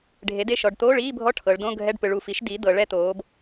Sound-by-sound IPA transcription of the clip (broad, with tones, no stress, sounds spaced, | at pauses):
ɖʱ e˩˥ d e˦˨ ʃ ɔ˩˧ ɖ t̪ oː˧˥˧ ɭ iː˧˥˧ bʱ ɔ˧˥˧ ʈʰ ɤ˩˧ ɭ d õ˧˥˧ ɡʱ ɛ˧˥˧ ɖ p ɯ˩˧ ɭ u˨˩ f i˩˥ ʃ d i˩˥ d̪ ɤ˩˧ ɭ ɛ˦˨ t̪ oː˩˧ b